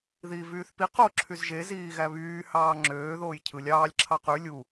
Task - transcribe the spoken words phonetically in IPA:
ðiːvyːθpi qo ǁʰyzʒe ziːɣæβyː hɑːŋ͡ǁøː ðoːjcʰɯlʲ ɑːlʲ ǁʰɑqy lʲu

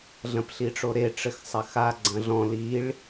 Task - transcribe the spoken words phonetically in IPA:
ɮɐ̃pɬiʈ͡ʂoɾe ʈ͡ʂɘxsˤɐxa ɡ͡ǀɐ̃ɮɔ̃ liɭ

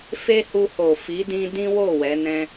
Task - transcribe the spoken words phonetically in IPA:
fe˦hu˧ho˨ fi˨˦dĩ˧ dĩ˦wo˦˨ wɛ˨˦nɛ̃˦

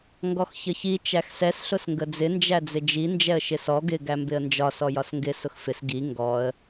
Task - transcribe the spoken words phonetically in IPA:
ŋɡɔxçəçi t͡ʃæxsɛs ɬʊsŋɡəd͡zɪ nd͡ʒæd͡zɪd͡ʒi nd͡ʒɛə̯ʃɪsɔ ɡɪ ɡæmbɪə̯nd͡ʒɒ sɔjɒsŋɡɪ sʊxfɪs ɡi ŋɡɔə̯

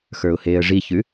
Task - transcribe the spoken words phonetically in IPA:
xə˞ʊ̯heːə̯ʐiçʉ

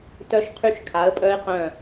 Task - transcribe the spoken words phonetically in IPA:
tœ˦˥ʃqʰy˦˨ʃ kʰa˨˥ə̯pʼœ˦˥ɪ̯qœ̃˦˨

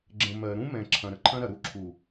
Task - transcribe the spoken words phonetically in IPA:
ɡ͡ǁə̃˨ mɜ˨ɾũ˦mɛ̃˨ ǁʰɐ̃˨ɾə˨ǃʰɐ̃˦ɾɐ˨ ɾu˦ǁʰu˨

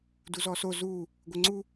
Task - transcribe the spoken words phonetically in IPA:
duzɔso zu | ɡʷɘŋ͡ǀu

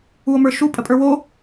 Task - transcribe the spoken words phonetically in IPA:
uo̯mə˞ʃu pʼəpʼə˞wo

